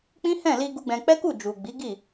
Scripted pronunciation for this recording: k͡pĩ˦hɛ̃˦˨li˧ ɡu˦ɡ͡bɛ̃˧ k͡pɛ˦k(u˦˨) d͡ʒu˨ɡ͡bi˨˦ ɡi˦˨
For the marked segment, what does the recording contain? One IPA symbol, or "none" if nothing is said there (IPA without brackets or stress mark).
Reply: u˦˨